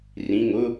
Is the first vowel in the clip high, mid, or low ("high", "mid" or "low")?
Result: high